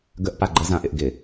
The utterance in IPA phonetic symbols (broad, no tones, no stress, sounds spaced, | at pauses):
ɡ ə ʔ p a ɡ͡ǃ ə z ã ʔ ɪ ʔ ɡ ɪ